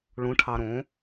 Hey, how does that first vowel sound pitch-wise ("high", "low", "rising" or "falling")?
rising